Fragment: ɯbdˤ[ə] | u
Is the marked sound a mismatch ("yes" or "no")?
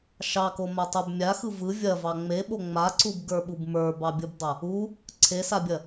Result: yes